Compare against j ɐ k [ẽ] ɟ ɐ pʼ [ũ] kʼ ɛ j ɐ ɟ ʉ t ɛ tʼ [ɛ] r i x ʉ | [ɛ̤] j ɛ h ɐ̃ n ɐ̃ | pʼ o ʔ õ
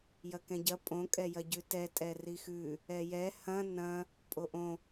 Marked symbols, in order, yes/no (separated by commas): no, no, yes, no